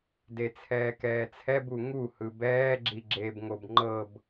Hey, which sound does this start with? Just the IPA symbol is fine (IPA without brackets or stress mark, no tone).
d